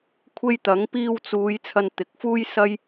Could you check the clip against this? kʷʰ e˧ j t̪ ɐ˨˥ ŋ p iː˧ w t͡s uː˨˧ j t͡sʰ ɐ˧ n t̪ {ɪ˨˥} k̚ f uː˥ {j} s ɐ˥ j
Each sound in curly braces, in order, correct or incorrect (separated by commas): correct, correct